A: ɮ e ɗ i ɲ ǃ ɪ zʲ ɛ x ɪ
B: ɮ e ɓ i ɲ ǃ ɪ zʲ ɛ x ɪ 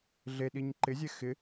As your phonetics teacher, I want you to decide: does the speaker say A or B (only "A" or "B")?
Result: A